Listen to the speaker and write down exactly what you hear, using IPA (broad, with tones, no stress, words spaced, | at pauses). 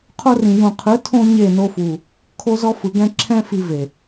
qʰo˧rĩ˨ jũ˨qʰɯ˨˦ tʰõ˧ ɲe˦˨no˧fu˨ | kʰo˧zɔ˧fɯ˨ɡɛ̃˧ ǁʰɛ̃˦fi˧ve˨